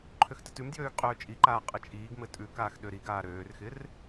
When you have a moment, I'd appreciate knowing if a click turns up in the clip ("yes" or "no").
yes